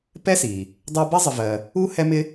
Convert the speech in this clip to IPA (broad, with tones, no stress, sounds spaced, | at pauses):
p ɛ˥ s i˩ | dˤ a˥ b i˥ zˤ ɪ˧ v ɜ˧ | u˥ h ɛ˥ m ɪ˥